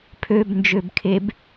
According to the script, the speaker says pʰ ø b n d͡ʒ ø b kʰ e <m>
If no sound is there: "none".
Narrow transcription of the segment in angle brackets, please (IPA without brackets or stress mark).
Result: b